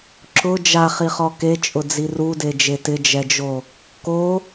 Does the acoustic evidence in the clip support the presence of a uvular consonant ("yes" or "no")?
yes